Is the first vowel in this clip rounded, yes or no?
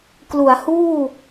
yes